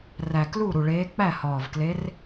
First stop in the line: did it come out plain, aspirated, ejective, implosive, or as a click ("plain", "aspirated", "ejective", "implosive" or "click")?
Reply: plain